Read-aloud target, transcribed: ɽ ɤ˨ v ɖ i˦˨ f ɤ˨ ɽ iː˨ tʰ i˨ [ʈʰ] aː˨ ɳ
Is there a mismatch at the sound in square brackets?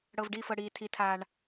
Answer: yes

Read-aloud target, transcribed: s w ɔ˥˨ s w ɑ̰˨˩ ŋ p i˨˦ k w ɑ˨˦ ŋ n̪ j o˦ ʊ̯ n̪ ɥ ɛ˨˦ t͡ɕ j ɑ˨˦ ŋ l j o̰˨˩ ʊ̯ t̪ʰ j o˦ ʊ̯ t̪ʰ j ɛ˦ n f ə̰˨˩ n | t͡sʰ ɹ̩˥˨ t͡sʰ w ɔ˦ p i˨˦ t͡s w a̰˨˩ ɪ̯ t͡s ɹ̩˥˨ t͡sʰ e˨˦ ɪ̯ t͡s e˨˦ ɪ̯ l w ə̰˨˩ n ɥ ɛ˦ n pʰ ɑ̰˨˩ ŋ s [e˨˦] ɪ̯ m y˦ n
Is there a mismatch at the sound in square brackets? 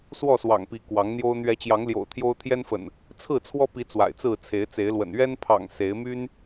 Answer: no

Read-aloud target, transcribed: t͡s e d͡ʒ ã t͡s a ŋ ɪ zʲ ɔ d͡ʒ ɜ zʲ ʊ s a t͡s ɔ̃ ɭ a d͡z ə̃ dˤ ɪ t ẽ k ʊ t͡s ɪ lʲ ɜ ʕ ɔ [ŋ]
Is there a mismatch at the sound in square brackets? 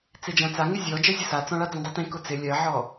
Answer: yes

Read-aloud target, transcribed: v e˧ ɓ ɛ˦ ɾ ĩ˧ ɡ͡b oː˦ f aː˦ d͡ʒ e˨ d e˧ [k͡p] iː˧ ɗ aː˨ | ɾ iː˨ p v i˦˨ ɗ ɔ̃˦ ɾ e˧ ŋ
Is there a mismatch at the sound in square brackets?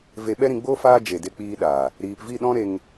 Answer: no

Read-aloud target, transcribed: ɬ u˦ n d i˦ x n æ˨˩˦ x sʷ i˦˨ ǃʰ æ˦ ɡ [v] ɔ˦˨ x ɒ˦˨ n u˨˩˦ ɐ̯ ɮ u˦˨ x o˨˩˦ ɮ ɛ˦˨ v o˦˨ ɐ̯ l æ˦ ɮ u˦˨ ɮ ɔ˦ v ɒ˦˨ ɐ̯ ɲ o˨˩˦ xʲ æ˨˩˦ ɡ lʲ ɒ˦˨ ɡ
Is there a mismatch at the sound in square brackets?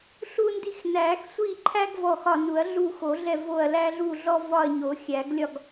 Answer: no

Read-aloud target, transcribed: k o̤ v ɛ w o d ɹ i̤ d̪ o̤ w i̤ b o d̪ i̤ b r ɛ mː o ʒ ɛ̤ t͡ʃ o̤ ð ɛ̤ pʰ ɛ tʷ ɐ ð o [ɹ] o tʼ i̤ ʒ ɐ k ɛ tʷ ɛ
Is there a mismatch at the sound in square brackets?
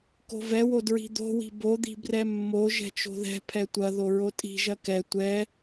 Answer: no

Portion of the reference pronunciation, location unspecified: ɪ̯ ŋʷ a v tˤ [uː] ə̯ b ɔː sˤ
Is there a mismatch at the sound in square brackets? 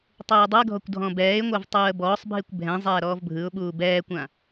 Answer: no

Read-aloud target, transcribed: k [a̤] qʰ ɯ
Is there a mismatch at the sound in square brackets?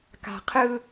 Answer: no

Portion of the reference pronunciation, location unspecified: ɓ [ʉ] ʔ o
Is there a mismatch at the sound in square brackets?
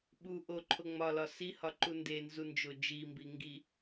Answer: yes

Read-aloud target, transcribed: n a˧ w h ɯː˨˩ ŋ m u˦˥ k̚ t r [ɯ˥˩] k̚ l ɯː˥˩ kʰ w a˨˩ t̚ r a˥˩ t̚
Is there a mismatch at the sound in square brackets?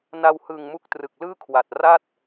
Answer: yes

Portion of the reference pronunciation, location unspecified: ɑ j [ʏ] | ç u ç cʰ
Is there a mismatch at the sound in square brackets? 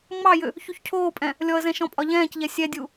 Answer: no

